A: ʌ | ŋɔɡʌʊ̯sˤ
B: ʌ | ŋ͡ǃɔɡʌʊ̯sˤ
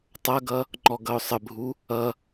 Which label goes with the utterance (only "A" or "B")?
B